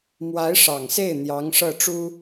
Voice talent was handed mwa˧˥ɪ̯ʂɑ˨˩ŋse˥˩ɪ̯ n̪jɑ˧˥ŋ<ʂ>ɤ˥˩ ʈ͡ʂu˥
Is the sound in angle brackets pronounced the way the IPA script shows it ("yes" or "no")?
yes